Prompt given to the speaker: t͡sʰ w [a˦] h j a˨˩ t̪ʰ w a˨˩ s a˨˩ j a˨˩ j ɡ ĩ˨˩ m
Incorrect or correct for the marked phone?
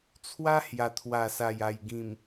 correct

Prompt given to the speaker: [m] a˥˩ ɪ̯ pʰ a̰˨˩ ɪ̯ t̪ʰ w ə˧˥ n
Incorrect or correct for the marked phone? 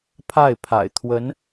incorrect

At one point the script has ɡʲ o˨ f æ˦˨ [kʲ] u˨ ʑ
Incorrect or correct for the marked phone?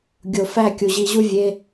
correct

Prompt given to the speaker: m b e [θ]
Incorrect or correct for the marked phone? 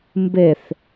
correct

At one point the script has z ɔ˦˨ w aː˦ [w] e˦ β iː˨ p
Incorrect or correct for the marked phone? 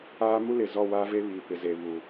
incorrect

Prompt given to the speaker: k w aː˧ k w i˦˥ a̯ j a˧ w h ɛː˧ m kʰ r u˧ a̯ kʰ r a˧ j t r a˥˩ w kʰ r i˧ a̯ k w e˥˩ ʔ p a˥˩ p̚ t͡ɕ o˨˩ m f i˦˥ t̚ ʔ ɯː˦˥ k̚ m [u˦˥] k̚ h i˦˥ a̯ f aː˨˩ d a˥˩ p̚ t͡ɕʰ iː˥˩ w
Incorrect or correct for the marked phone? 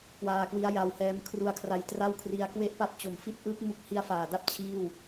incorrect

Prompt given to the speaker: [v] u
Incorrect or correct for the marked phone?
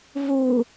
correct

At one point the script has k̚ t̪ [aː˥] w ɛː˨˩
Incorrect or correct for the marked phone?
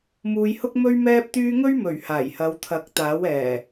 incorrect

